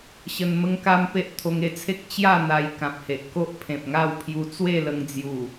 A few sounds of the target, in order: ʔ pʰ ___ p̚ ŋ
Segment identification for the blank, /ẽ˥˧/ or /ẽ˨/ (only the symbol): ẽ˨